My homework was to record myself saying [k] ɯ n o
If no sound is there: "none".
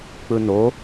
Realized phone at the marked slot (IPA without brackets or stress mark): k͡p